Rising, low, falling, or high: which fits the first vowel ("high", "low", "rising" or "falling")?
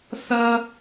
high